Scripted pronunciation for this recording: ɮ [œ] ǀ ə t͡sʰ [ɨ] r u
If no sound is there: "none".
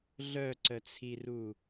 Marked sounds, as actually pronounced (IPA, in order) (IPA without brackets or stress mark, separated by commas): œ, i